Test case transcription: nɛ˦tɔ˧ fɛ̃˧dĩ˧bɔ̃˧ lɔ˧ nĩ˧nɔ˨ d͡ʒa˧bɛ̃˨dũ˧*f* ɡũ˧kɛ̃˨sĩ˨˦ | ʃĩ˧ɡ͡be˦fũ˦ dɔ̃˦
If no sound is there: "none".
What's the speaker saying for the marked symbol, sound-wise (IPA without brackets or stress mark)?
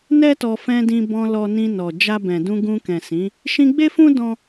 none